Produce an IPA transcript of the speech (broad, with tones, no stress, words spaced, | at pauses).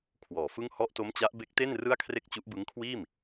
kʰwɔː˨˩fɯ˥˩ŋ hɔ˦˥ʔto˦˥mt͡ɕa˦˥ʔ be˦˥k̚te˥˩n rɯ˥˩a̯kʰre˥˩k̚t͡ɕu˦˥ʔbɯ˦˥ŋ kʰwiː˥˩m